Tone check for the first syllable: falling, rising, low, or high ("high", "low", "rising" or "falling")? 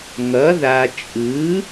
rising